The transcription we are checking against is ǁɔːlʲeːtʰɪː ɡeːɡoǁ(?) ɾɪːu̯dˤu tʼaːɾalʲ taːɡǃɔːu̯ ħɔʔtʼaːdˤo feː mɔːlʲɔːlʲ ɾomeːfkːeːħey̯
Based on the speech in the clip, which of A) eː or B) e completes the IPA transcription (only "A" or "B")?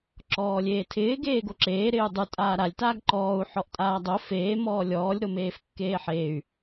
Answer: A